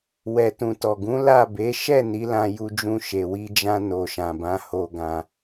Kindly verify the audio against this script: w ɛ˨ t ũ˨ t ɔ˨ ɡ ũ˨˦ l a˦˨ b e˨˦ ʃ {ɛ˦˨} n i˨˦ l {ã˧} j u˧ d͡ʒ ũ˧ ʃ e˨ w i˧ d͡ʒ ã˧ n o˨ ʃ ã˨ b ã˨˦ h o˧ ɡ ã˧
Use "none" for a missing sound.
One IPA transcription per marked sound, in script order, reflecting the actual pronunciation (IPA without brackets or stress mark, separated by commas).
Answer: ɛ˦˨, ã˧